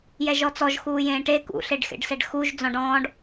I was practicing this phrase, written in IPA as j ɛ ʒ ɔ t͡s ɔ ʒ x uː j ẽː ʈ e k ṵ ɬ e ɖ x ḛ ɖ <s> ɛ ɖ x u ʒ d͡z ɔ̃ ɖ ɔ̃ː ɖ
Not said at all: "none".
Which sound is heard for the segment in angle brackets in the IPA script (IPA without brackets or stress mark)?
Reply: s